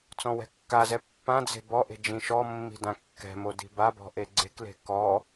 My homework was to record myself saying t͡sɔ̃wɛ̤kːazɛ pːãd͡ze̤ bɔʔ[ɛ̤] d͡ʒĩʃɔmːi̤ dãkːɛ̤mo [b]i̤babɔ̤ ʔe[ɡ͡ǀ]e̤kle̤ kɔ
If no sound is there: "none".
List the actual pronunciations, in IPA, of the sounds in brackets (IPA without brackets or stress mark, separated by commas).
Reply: e̤, d, ɡ͡ǀ